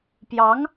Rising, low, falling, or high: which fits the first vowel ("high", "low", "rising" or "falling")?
rising